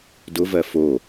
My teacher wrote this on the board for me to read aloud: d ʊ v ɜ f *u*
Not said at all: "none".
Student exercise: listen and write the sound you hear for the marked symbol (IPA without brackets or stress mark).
o